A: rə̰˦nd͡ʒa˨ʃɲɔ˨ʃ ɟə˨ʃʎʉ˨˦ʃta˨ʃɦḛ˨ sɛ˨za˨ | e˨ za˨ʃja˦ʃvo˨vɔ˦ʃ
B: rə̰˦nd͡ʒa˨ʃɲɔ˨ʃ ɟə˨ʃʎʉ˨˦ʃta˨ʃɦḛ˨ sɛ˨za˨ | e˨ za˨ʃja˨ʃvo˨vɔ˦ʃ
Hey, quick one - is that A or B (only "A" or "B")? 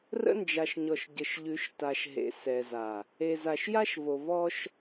A